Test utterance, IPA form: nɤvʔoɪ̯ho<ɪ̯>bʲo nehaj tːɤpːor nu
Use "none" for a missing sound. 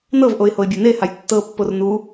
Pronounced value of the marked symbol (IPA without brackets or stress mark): ɪ̯